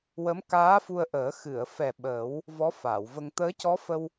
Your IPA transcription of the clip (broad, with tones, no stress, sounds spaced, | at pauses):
w ə˧˥ m k aː˧˥ f u˧ ə̯ ʔ əː˨˩˦ x ɨ˨˩˨ ə̯ f ɛ˨˩ ɓ ə˨˩˦ w | v ɔ˧˥ f a˨˩˨ w v ə˧ ŋ t̪ əː˧˥ c ɔ˧˥ f ə˧ w